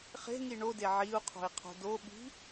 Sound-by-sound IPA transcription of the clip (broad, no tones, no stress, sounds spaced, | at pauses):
χ e̤ ŋ i ɳ o d e ʕ i u̯ qʰ o̤ i̯ qʰ o̤ d o ɓ i̤